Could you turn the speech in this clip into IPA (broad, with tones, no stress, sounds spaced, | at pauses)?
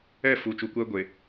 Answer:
ɛ˦˨ f u˨ t͡ʃ u˨ kʷ ɛ˦ ɡʷ e˨